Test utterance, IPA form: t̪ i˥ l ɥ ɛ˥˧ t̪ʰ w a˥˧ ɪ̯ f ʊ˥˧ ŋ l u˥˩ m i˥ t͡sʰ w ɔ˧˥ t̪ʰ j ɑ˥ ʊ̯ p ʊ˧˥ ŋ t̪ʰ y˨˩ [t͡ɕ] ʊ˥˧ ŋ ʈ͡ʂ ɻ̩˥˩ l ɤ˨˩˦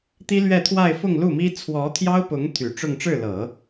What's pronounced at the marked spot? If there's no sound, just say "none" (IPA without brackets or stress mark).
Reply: ʈ͡ʂ